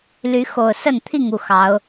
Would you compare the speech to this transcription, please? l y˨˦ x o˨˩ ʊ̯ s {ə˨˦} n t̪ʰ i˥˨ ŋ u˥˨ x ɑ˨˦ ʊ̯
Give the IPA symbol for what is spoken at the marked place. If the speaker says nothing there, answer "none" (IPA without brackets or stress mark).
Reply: ə˥˨